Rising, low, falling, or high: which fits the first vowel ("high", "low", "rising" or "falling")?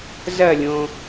falling